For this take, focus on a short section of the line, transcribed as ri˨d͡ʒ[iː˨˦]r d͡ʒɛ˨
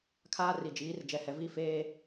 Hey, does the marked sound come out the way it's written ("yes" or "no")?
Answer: yes